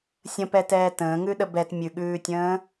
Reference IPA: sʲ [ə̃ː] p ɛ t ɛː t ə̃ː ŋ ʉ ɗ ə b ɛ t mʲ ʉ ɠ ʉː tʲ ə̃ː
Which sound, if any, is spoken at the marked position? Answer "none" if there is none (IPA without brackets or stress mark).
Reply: ə̃